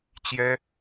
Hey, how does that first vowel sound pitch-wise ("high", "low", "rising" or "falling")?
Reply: high